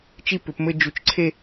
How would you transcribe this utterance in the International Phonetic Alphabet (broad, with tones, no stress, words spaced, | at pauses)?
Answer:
t͡ʃi˥˩pʏ˩˧pmɘ˥˧ d͡ʒu˨˩t͡ʃǀʰe˥˧